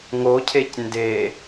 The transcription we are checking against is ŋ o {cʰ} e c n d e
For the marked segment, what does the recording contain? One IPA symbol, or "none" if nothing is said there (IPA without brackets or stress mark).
cʰ